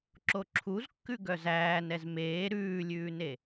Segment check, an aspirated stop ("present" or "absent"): present